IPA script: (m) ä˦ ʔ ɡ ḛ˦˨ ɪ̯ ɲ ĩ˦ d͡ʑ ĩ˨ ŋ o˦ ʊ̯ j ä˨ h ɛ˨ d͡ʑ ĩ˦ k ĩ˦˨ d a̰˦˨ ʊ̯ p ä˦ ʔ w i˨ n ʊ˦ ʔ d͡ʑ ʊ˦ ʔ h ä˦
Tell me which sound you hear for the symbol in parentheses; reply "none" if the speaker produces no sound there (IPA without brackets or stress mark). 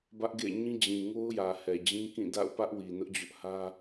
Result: b